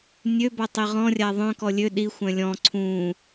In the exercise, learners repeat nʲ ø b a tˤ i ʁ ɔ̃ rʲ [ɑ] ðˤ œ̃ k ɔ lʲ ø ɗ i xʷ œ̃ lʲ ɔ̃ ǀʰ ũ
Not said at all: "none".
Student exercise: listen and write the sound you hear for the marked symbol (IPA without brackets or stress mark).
a